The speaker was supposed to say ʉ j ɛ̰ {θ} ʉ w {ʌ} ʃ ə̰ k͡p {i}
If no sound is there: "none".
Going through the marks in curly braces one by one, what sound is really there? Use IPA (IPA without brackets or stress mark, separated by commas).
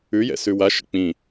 s, a, ĩ